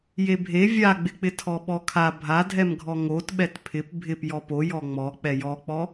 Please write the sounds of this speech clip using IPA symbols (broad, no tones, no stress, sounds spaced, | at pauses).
j e bʱ e vʲ a ɡ͡b ɪ k͡p ɪ tʰ ɔ ɓ ɔ kʰ a bʱ a dʱ ɛ m ɡʱ ɔ ŋ o t ɓ ɛ t pʰ ɪ p bʱ ɪ p j ɔ p o j ɔ ŋ͡m ɔ k͡p ɛ j ɔ k͡p ɔ